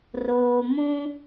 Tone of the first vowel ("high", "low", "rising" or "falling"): low